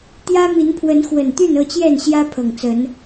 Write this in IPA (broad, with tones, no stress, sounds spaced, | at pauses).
t̪ j ä˦ m i˨˦ n pʰ w ə˨˦ n x w ə˨˩ n t̪ y˥˨ n ɤ˥˨ t͡ɕ j ɛ˥˨ n ɕ j ä˦ pʰ ɤ˨˩ ŋ t͡s ə˨˦ n